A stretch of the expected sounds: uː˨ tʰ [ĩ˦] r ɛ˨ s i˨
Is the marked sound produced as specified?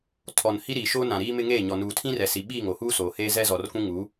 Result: yes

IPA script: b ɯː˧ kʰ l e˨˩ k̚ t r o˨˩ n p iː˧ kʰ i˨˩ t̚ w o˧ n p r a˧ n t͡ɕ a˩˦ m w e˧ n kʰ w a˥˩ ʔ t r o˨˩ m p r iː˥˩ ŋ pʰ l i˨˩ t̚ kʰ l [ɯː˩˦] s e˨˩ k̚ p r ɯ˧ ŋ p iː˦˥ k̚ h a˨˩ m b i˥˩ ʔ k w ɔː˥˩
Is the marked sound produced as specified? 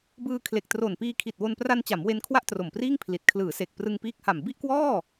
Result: yes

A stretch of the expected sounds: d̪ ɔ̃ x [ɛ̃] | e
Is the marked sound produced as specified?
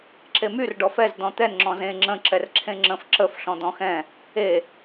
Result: yes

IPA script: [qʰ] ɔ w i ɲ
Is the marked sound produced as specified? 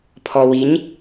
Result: no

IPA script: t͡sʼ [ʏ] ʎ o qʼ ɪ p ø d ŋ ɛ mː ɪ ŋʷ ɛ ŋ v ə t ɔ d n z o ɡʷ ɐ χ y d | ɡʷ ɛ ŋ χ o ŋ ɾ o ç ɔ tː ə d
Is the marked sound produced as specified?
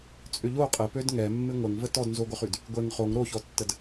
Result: yes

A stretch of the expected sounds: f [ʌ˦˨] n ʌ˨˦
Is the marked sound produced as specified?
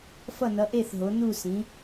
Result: yes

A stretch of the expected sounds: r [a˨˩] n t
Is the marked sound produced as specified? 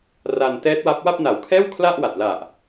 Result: no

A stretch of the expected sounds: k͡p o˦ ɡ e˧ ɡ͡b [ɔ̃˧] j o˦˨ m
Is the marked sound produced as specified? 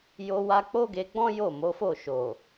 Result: no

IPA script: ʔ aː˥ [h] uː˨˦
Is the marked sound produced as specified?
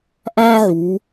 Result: no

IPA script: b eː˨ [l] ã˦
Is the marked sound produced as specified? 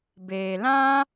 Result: yes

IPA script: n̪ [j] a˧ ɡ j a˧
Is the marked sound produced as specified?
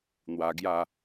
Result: no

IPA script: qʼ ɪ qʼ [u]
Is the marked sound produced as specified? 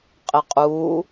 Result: yes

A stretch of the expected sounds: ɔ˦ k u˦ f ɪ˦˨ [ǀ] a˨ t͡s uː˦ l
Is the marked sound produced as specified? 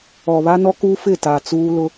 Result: no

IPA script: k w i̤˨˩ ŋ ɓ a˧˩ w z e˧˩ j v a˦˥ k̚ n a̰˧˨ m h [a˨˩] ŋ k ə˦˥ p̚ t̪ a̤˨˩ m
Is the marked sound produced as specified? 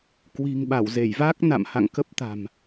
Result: no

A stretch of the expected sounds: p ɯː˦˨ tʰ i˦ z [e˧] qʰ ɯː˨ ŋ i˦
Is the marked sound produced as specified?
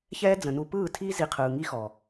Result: no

